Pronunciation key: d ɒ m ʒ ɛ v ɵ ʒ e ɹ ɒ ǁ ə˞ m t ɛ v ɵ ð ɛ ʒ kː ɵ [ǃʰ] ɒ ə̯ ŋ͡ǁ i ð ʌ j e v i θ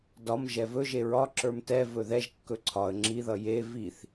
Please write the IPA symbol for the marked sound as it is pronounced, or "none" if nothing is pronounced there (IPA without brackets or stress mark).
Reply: ǀʰ